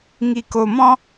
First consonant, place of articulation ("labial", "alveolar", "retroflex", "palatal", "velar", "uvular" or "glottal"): velar